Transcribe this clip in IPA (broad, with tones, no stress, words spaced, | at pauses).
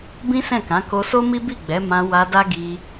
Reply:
bĩ˦sɛ̃˦˨kã˨˦ ko˧so˦mi˦bi˦˨ ɡ͡bɛ˨˦mã˧ wa˧da˦ ɡi˧